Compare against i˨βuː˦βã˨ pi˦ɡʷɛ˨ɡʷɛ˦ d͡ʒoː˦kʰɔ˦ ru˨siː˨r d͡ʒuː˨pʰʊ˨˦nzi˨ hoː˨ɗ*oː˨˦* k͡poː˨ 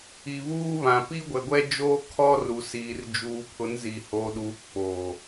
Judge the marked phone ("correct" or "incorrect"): incorrect